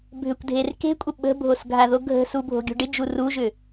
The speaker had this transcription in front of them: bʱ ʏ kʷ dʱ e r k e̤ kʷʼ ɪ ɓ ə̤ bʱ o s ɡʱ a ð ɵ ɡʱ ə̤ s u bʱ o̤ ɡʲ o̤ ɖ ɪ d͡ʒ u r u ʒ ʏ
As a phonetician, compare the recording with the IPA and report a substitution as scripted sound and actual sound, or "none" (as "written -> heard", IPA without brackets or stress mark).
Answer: ɵ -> o